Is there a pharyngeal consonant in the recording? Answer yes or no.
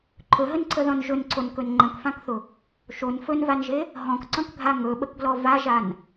no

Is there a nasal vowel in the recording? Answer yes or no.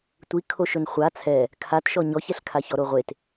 no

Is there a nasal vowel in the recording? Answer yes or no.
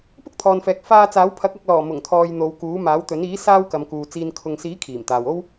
no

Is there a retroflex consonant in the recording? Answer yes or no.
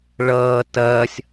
yes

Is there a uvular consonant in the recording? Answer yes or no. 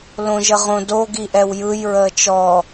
yes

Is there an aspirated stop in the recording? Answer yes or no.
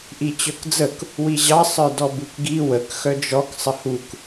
no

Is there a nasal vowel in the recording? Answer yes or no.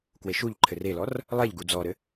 no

